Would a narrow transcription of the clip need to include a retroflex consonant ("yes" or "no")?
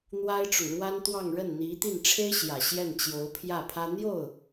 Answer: yes